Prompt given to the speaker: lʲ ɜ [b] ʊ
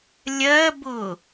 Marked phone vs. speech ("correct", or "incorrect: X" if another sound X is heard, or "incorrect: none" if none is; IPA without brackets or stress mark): correct